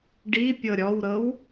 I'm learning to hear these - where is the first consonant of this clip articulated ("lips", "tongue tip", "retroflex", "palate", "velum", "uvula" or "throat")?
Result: retroflex